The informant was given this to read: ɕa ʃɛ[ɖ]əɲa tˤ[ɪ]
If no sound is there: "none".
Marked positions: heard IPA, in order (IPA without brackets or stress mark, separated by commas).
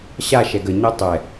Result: ɡ, ɛ